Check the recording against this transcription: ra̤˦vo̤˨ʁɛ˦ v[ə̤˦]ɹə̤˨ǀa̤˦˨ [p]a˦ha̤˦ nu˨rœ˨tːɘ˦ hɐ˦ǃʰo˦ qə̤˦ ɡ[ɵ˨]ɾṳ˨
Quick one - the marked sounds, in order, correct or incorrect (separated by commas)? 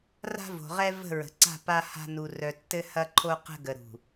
incorrect, correct, incorrect